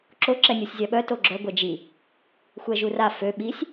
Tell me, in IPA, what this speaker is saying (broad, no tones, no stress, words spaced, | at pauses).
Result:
ǁo ǁɛnʲusʲzʲaɓœ toɡ͡ǁœ ɡʷɛd͡ʒi | xʷɛʒura fø ɓisʲ